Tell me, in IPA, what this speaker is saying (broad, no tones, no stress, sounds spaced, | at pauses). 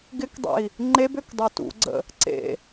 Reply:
ɡ ɪ k dˤ ḛ i̯ | ŋ͡ǃ e b ø k dˤ ø t ṵ ɡ͡ǀ ə̰ | ǀ ḛ